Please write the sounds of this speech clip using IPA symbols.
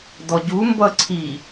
d ɔ ɟ u m b ʌ ǀʰ i

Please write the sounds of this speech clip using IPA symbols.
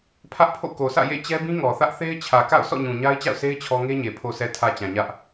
pʰ ä˦ ʔ pʰ o̰˦˨ k o˨ sʰ ä̰˦˨ j ḛ˦˨ t͡ɕ ɛ˦ b ĩ˦ ŋ ɔ˨ θ ä˦ ʔ θ e˦ ɪ̯ t͡ɕʰ ä˨ k a̰˦˨ ʊ̯ sʰ ɔ̰˦˨ ɲ ũ˨ ɲ a˦ ɪ̯ t͡ɕ a̰˦˨ ʊ̯ sʰ e˦ ɪ̯ t͡ɕʰ ɔ˦ ŋ e˦ ɲ e˨ pʰ o˨ sʰ ɛ˨ tʰ ä˨ t͡ɕ ã˨ ɲ ä˦ ʔ

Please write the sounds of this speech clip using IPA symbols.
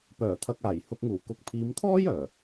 p œː˨˩ t̪ʰ ɐ˨ k̚ aː˨˩ j h ʊ˨ k̚ ŋ uː˨˩ k ʊ˨ k̚ pʰ iː˨˧ m t̪ʰ ɔː˥ j œː˨˩

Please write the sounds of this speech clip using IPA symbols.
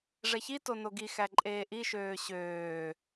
ʐ ɛ ç i t o n o ɡ i x æ ǃʼ eː ʔ i ʃ øː ɕ øː

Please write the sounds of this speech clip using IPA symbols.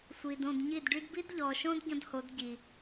sʷ i˨ d õ˦˨ d ɲ i˦˨ d ɖ y˦ d b i˦ d ʎ ɔ˨ ʃ õ˦ d ɟ ɔ̃˦ d h o˨˦ d ɟ i˨

